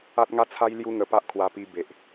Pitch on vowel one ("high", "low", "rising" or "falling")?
high